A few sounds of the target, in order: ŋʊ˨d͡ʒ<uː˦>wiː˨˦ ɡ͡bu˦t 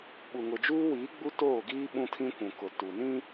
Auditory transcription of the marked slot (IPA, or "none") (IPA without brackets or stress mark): uː˦